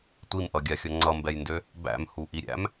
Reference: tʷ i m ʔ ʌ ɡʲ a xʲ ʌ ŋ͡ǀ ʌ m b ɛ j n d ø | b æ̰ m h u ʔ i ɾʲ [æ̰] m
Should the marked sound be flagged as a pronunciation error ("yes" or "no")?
no